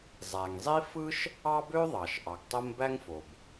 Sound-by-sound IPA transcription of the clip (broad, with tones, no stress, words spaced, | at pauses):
zˤæ˩ŋzˤi˥ fɯ˥ʃ | ɑ˥bø˥ðˤɑ˩ʃ ʔɑ˩ɡtˤo˥m bæ˥ŋfo˩b